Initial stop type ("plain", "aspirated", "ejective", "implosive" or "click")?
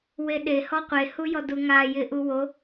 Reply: implosive